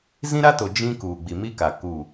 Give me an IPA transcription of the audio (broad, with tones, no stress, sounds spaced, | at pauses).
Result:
z ĩ˦ ɾ a˦ t o˨ d͡ʒ ĩ˦ k uː˨ ɡ͡b i˨ m i˦ k a˨ k u˦˨